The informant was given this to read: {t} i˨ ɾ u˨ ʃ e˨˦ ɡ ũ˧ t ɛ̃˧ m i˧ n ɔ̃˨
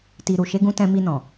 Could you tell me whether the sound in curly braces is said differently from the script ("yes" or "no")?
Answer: no